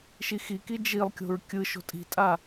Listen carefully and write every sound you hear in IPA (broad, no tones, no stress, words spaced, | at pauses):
ʃixiki d͡ʒilˠkʲo̤ɹ kʲɯ ʃo̤tʼi̤tʼa